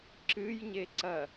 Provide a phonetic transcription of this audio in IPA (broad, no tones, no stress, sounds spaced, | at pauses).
ǁ ɨ j ɲ e ǀ ɐ